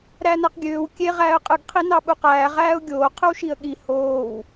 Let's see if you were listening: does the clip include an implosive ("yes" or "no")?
yes